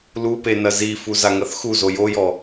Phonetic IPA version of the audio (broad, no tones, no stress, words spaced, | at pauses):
lupe nɐzifu zaŋɐθxuzo jojɔ